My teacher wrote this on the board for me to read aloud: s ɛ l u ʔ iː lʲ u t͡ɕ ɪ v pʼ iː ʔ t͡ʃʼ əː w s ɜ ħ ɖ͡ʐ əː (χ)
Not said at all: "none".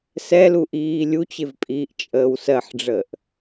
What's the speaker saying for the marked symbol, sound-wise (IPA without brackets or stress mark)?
ʔ